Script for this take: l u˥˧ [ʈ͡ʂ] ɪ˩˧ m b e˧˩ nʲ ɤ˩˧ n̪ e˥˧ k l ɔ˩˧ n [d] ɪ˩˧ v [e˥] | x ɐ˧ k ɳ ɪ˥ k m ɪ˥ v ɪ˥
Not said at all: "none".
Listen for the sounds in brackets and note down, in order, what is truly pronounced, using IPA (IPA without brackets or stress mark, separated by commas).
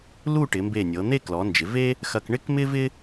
ʈ, d͡ʒ, e˥